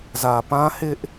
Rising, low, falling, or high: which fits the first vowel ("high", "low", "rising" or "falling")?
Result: low